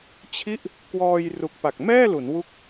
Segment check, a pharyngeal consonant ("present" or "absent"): absent